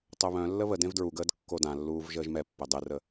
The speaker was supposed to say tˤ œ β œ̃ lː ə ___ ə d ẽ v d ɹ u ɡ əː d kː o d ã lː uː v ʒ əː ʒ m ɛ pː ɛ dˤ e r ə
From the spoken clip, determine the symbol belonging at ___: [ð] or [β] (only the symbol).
β